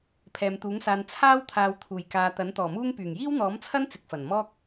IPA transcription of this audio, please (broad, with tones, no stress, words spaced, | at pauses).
pʰɛː˨mt̪uː˨˥ŋsaː˧n t͡sʰaː˥wt̪ʰaː˨w t̪ʰuː˨˩jkaː˨ t̪ɐ˨˥nt̪ɔː˨˩muː˥ŋpyː˨˩ŋ jiː˥wn̪ɔː˨˥mt͡sʰɐ˥n t͡sɪ˨˥k̚fɐ˨˩n mɔː˥k̚